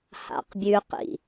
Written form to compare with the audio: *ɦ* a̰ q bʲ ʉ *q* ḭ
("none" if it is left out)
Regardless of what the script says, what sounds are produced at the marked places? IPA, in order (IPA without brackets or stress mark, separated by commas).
h, q